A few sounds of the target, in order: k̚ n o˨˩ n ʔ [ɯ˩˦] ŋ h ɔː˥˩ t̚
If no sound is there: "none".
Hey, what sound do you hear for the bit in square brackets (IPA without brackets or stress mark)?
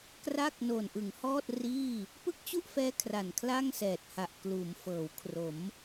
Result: ɯ˩˦